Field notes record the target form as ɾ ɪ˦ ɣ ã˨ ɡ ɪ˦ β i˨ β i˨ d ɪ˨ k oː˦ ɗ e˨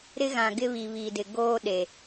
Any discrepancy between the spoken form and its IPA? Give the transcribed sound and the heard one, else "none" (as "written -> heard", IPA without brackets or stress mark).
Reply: k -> ɡ